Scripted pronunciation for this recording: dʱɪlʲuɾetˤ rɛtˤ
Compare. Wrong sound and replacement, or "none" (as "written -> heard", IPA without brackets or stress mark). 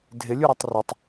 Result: ɛ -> ɪ